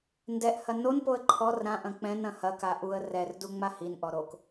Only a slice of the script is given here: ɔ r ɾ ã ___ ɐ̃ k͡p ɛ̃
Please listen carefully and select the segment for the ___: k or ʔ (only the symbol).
ʔ